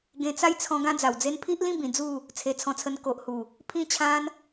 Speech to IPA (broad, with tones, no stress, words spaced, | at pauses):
ɡẽ˧t͡sa˥˧jt͡sʰɔ̃˧ ɡã˦d͡za˨˩wd͡ze˦n pʰi˦ʔlĩ˥˧ bĩ˧d͡zu˥˧ | t͡sʰe˧t͡sʰɔ̃˧t͡sʰə˧n ko˨ʔhu˨˩ | pʰĩ˥˧t͡ɕʰã˦n